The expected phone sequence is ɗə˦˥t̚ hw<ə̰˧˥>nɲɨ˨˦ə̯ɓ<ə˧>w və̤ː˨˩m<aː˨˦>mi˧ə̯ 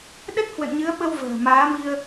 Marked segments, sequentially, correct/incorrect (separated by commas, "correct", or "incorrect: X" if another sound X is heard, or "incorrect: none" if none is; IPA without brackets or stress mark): incorrect: ə̰˧˨, correct, correct